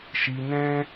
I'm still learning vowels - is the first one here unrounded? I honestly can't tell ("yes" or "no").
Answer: yes